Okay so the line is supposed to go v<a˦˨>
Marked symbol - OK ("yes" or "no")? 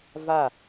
yes